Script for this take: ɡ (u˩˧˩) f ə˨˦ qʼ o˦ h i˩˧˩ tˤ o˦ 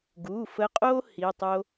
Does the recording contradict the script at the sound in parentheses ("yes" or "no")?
no